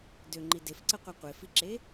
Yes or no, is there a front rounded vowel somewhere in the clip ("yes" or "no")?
yes